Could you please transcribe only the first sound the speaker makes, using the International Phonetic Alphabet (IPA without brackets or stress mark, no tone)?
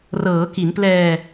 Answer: r